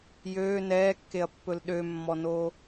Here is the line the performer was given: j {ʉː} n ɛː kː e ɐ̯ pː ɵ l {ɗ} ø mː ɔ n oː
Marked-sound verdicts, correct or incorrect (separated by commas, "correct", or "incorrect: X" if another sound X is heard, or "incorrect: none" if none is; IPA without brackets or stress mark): incorrect: øː, correct